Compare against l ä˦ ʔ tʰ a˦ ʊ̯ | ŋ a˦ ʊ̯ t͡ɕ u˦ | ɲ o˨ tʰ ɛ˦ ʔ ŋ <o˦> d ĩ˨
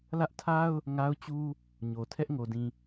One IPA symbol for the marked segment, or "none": o˨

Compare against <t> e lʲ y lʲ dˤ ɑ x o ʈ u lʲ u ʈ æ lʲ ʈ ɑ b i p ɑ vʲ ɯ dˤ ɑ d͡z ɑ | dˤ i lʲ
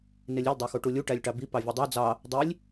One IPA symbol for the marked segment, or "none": n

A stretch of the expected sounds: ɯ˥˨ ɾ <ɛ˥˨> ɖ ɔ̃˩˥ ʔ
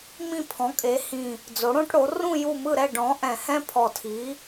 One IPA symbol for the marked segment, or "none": ɛ˥˨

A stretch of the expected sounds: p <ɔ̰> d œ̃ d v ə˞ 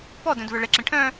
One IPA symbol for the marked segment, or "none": ɔ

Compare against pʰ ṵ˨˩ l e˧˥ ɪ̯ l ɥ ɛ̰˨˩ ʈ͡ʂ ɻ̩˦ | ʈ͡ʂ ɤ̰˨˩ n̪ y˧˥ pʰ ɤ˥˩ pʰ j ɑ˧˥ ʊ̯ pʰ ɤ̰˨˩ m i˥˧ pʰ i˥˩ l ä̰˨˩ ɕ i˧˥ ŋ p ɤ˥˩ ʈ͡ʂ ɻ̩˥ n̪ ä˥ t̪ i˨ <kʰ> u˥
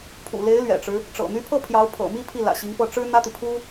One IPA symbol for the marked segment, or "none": pʰ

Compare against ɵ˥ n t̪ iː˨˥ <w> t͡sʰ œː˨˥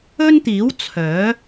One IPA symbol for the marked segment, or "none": w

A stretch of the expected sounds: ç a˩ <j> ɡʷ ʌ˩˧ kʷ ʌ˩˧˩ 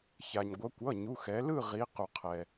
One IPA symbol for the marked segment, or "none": ɲ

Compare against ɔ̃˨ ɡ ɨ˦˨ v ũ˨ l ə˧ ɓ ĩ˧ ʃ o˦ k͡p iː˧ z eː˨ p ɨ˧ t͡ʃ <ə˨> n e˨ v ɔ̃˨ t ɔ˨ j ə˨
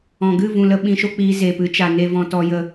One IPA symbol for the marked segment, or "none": a˨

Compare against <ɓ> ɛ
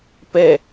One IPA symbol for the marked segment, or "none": p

